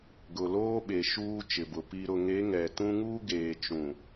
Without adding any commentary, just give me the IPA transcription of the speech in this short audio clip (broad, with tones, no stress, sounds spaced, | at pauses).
ɡ ʊ˨ l oː˦ ɓ e˨ ʃ uː˦ t͡ʃ ɪ˨ b ʊ˨ p i˨ ɾ ʊ˨ ŋ e˨˦ ŋ ɛ˨ t ũ˦ ŋ uː˦ ɡ eː˨ t͡ʃ ũ˨